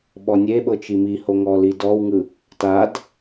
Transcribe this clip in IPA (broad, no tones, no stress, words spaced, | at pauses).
ɓɔnʲeɓɤ t͡ʃimiho ŋɔlidɔwŋɯ | tad